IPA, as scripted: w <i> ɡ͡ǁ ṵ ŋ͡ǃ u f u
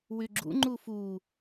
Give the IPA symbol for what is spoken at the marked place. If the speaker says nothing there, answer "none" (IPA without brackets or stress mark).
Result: y